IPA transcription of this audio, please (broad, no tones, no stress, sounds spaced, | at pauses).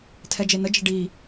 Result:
tʰ ɛ d͡ʒ e n ə d͡ʒ ə ɖ i